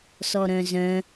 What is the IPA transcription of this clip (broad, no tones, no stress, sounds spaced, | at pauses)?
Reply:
s ɔ ɾ œ̃ z œ̃